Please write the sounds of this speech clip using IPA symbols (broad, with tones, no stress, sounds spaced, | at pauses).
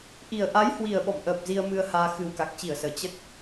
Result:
ʔ i˨˩ ə̯ ʔ a˨˦ j h w i˨˩ ə̯ ɓ ɔ̰˧˨ m ʔ əː˨˩ p̚ z i˧ ə̯ m ɨ˧ ə̯ h aː˧ x ɨ˨˩ w k a˨˩ k̚ t͡ɕ i˧˩ ə̯ s əː˧˩ t͡ɕ ə˦˥ t̚